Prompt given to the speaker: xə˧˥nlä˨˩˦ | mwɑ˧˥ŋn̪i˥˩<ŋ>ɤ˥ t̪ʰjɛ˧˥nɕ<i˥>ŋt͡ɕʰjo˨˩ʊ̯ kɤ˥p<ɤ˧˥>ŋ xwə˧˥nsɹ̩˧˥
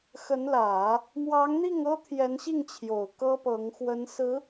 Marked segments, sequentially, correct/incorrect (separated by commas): correct, incorrect, correct